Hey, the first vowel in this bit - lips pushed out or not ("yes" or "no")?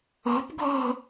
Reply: yes